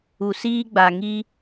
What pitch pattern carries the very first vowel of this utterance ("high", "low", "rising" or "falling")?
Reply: low